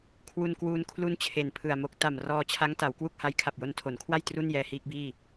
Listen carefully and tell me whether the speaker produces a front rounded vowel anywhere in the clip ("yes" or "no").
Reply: no